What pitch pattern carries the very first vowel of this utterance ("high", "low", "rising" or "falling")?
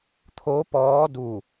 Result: rising